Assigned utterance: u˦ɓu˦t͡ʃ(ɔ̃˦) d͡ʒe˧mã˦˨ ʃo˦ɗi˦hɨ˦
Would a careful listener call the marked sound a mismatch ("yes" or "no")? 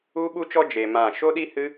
yes